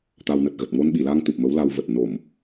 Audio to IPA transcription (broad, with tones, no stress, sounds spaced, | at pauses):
t̪ a˧ w n ə˨˩ t̚ ɣ ə˨˩ t̚ ŋ o˧ n ɓ i˧˩ l a˧ ŋ t̪ ɨ˨˩ p̚ m ə˨˦ w l a˧ w v ə˨˩ t̚ n o˧˩˨ m